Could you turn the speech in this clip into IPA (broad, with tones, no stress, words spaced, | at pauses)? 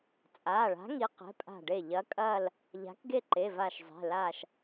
t͡sʼaː˩˧˩ɭa̤˨˥ŋi˨˥ qɛ̤˩˧˩pʼa̤˧˩ɖe˧˩ ʎɐ˨˥kʼɐː˥˨l | ʎa̤˨˥kɡe˥˨ǃe˩˧˩va˧˩ʃ zˤɛ̤˩˧˩ laː˧˩ʃ